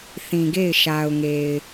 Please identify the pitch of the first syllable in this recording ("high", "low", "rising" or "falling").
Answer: low